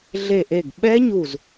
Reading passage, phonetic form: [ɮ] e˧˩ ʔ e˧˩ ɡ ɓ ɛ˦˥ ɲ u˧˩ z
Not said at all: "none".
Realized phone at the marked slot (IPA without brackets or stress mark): ɮ